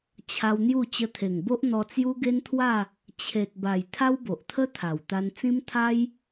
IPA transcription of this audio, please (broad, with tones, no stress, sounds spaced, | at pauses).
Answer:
t͡ɕʰ a˧ w n̪ j u˥˧ t͡ɕ ə˧ t̪ʰ e˨˩ ŋ b o˦ ʔ n̪ ɔ˧ t͡s j u˦ ɡ e˦ n t̪ʰ w a˥˧ | t͡ɕʰ e˨ t̚ b a˨˩ j t̪ʰ a˦ w b o˨ ʔ t̪ʰ ə˦ t̪ʰ a˨˩ w t̪ a˧ n t͡s ĩ˦ m t̪ʰ a˦ j